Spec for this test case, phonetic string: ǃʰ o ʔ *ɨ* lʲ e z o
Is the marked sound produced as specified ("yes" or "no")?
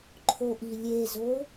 no